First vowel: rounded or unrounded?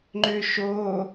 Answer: rounded